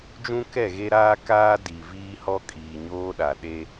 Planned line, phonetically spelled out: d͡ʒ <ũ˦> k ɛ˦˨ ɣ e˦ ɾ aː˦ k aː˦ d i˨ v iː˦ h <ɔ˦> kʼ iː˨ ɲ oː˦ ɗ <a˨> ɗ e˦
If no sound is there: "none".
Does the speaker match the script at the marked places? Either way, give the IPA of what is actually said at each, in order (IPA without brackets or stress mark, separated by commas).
ũ˦, ɔ˦, a˨